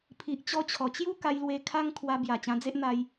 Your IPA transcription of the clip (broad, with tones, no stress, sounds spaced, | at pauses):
pʰ i˨ ʔ t͡ɕ ɔ˧ t͡ɕʰ ɔ˨˩ t͡ɕ j u˦ k a˧ j l w e˧ kʰ a˦ ŋ kʰ w a˧ b j a˨˩ t͡ɕ ã˧ d͡z e˦ ʔ n̪ a˧ j